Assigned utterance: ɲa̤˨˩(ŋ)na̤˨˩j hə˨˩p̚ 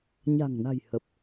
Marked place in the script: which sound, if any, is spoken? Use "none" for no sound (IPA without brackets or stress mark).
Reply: ŋ